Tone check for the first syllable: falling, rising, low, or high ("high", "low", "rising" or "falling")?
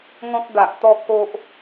high